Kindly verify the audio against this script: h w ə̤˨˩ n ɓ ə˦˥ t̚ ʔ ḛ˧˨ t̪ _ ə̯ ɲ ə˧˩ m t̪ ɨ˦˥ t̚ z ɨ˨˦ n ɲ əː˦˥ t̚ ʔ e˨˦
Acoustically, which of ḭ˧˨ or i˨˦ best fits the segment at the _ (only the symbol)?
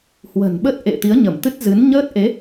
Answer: i˨˦